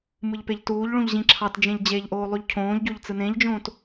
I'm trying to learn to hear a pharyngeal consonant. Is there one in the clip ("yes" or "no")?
no